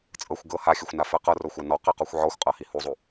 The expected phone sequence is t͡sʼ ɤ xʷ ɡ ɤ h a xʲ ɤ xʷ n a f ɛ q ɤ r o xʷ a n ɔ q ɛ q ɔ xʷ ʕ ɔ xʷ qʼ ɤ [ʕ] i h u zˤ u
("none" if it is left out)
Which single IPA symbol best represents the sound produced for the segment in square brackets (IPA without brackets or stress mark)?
h